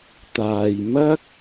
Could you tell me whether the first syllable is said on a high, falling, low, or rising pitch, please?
low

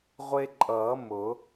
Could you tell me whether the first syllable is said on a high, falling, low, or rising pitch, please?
high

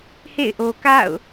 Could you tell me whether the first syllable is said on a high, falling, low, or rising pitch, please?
falling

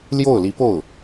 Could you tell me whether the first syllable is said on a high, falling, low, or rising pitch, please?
falling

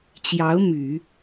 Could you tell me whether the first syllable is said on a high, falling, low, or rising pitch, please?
rising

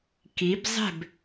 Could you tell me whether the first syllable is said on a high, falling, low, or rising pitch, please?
rising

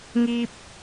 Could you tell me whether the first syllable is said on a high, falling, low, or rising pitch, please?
low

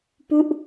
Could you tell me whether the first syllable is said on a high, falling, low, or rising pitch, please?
falling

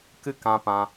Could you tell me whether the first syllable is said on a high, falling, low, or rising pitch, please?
high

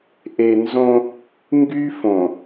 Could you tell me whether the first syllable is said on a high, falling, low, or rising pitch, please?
low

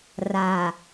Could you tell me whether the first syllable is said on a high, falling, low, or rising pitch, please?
low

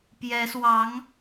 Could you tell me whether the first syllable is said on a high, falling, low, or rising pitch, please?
rising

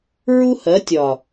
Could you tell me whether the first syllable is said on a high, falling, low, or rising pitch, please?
high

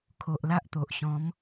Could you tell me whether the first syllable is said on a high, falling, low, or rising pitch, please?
low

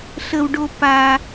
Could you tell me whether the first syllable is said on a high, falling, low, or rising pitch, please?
low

